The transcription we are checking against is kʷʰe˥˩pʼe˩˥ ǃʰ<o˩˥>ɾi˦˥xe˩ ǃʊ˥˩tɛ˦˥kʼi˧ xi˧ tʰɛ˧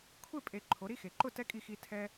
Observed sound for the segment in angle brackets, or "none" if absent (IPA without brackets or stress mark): o˩˥